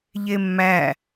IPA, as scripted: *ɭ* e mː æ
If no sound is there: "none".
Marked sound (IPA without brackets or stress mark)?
ʎ